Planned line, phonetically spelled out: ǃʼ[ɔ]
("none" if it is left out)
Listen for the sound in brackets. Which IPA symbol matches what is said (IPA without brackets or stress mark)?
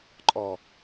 ɔ